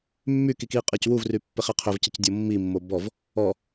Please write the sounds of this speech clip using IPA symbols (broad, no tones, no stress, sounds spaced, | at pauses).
mː y k i k i qʼ ɨ c w u v r y pː e χ e qʰ ʏ v c ə c dʲ o mː i mː o b ɔ v | ɔ